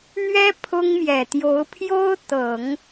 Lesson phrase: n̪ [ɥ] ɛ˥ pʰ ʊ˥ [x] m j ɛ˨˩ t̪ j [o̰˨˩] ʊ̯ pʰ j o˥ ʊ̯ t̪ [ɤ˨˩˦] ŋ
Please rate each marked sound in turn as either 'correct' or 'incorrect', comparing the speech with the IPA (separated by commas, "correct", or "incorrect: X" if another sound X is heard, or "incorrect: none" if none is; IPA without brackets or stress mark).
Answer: correct, incorrect: ŋ, incorrect: o˧˥, correct